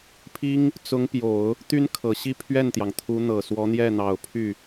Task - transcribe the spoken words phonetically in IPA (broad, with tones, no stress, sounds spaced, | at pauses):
pʰ i˥ ŋ | t͡s ʊ˧˥ ŋ p j o˨˩˦ ʊ̯ | t̪ y˥ n kʰ ɤ˨˩ ɕ i˥˧ pʰ ɥ ɛ˥˩ n t̪ j ɑ˩ ŋ t̪ʰ u˧˥ n̪ ɤ˨˩ s w ɔ˧˥ n̪ j ɛ˥˩ n̪ ɑ˨˩ ʊ̯ pʰ y˥˩